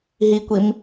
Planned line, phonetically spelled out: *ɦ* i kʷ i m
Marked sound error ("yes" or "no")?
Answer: no